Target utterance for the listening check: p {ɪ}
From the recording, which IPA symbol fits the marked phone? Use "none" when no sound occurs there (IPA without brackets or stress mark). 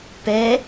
ɛ